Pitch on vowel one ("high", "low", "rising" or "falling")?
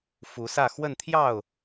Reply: rising